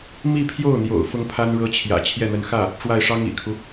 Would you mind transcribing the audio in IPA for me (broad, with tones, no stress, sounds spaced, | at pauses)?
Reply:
m i˥˧ pʰ j o˥˩ ʊ̯ n̪ j o̰˨˩ ʊ̯ f ʊ˥ ŋ pʰ a˥ n ɻ ɤ˥ t͡ɕʰ j ä̰˨˩ t͡ɕʰ j ɛ˥˩ n̪ ə˧˥ n x ä˥˩ | ʈ͡ʂ w a˥˩ ɪ̯ ʂ ɑ˥ ŋ ḭ˨˩ kʰ u˦